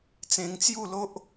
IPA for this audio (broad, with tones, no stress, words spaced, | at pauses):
t͡sẽ˧ŋt͡sju˥˧lo˦ʔ